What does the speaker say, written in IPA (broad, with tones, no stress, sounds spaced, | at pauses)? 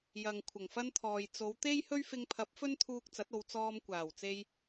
j ɐ˨ ŋ kʷʰ ɐ˨˩ ŋ f ɐ˥ n t̪ʰ ɔː˨ j t͡s o˨˧ w t̪ e˥ j h ɵ˥ ɥ f ɪ˧ ŋ pʰ ɐ˨˥ p̚ f ɵ˥ n t̪ʰ uː˧ k̚ t͡s ɐ˨˥ t̚ o˨˧ w t͡s ɔː˧ m kʷ aː˨˩ w t͡s e˧ j